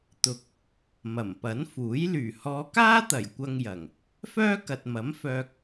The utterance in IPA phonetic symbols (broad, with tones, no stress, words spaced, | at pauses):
t̪ʊ˨k̚ | mɐ˨˩mpɐ˨˥nfuː˨˥j lyː˨˩hɔː˨˧kaː˥t̪ɐ˨˩j kʷɐ˧ŋjɐ˨˩ŋ | fœː˥kɐ˨t̚mɐ˨˥mfœː˧k̚